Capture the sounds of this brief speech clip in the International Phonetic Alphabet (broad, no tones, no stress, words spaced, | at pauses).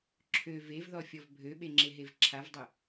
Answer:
ǁʰø vevðɔfʲɔv bʱøɓeŋ͡ǁeɦev ǁʰavdˤø